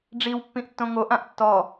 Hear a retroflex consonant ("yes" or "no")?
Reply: yes